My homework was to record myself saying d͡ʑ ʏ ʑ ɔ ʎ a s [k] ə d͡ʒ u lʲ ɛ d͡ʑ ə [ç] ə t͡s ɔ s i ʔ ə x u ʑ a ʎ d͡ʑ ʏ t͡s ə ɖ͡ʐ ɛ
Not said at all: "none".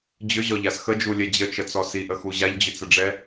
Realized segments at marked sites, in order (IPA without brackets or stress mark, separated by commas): x, t͡ʃ